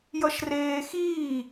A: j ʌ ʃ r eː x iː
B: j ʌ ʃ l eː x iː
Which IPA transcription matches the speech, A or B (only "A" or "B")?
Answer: A